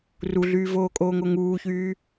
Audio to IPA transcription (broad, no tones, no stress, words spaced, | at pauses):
ruɮyːvoːkʼoːŋ oŋuːçyː